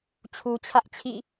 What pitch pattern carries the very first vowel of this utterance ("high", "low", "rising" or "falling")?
low